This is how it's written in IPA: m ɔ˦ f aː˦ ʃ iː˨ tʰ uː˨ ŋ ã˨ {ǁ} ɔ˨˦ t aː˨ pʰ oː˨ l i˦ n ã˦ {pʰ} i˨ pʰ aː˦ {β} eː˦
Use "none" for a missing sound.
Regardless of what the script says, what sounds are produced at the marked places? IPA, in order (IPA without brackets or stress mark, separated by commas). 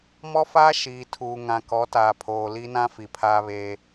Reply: k, f, β